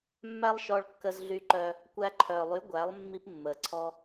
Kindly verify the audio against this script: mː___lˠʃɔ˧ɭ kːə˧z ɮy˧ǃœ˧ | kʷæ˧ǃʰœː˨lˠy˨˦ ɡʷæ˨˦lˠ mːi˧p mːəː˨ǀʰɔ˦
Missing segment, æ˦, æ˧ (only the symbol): æ˦